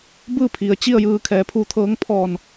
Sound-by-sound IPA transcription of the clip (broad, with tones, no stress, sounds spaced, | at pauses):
b ɯː˥˨ pʰ i˩ ə̯ t͡ɕ i˥˨ ə̯ j ɯː˧ kʰ ɛː˩˧ pʰ uː˧ t̪ʰ ɤː˧˥ ŋ pʰ ɔː˧˩ n